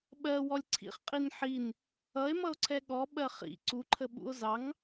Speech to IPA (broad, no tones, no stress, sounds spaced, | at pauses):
ɓ ɜ w ɔ lʲ ǀʰ ḭ χ qʼ i n ħ i n | ʌ e̯ m ʌ o̯ ǀʰ ɛ ɠ ɔ ɓ ɜ χ ḭ ǀ u ǃʰ ə ɓ ṵ o̯ z ɑ ŋ